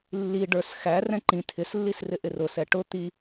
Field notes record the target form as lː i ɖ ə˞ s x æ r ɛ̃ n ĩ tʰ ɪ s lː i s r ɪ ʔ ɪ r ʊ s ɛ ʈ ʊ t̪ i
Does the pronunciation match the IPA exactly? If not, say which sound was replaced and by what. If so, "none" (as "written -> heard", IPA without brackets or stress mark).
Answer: n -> ǃ